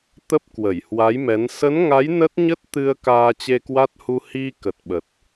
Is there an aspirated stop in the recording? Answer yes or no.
no